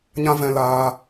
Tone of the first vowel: high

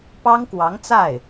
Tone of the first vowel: high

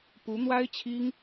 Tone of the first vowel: rising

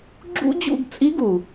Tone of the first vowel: high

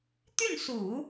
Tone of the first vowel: falling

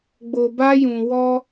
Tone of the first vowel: low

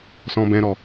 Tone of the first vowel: low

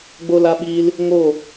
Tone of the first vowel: high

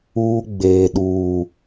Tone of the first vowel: high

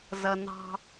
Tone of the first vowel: low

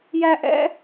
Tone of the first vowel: high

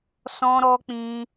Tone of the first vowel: high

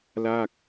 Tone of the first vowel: falling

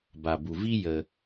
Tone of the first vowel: low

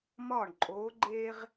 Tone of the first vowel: falling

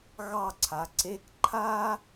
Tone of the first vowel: falling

